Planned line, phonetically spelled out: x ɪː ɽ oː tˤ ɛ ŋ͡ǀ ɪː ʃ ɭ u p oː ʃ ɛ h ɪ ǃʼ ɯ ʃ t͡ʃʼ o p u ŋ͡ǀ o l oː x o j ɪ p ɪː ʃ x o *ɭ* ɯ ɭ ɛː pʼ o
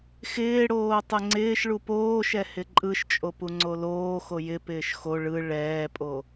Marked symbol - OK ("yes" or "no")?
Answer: yes